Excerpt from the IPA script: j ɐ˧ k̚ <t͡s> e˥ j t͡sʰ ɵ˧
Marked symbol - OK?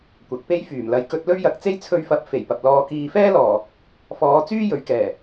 yes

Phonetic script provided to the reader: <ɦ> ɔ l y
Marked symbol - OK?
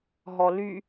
yes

